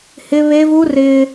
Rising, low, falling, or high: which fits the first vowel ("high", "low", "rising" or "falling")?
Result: high